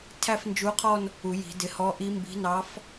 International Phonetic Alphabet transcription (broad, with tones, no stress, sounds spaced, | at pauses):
tʰ æ˥˧ f n d͡ʒ u˧˥ qʰ ɔ˥˧ n | u˨˩˦ j i̤˨˩˦ d ɪ˩˥ h ɔ˧˥ ʔ i˧˥ m b i̤˧˥ n ɑ˧˥ f